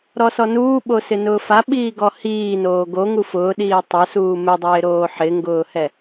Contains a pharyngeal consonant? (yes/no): yes